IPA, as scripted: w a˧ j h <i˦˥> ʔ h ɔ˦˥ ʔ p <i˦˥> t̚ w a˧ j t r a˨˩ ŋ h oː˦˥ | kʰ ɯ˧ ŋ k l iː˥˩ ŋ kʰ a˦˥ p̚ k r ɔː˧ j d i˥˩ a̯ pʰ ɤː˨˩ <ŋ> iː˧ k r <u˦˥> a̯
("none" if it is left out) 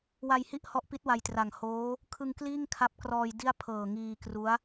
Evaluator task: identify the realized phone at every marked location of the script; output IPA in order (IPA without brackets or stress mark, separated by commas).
i˥˩, i˦˥, ŋ, u˦˥